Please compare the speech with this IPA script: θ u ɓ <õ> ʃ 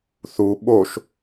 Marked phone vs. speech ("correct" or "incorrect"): incorrect